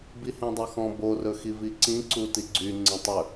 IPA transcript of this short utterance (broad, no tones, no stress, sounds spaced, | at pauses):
b i h ẽ dˤ o x ɔ̃ b o r ɵ x i v i ǀ ĩ ǀ u t i ɡ͡ǀ y ŋ͡ǀ ẽ tˤ ɵ